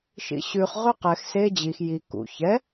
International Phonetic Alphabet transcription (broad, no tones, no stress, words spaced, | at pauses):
ʃḭɕʉχ ʁʉqɛx se d͡ʑix ji kṵ çɛ